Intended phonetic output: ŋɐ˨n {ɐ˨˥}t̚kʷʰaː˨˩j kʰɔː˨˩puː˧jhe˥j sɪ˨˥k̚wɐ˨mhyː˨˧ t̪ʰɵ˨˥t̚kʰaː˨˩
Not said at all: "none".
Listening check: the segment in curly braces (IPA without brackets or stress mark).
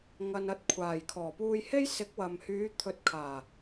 ɐ˨˥